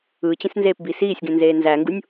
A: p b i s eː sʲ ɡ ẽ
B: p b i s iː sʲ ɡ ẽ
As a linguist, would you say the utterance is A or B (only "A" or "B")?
B